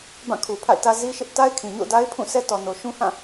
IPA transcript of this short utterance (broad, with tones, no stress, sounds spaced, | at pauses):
b ã˦˨ kʰ u˨ pʰ a̰˦˨ ɪ̯ t ä˦ z i˦ ʃ ɪ˦ ʔ t a˦ ɪ̯ kʰ ĩ˨ ɲ o̰˦˨ ʊ̯ d a˦ ɪ̯ pʰ ũ˦˨ s ɛ˦ t ɔ˨ n o˨ ʃ ũ˦ h ã˦˨